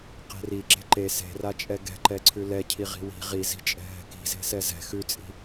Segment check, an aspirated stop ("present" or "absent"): present